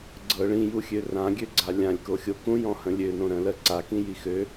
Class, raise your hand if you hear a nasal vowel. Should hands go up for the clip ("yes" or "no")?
yes